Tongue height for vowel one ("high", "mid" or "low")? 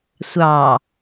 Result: low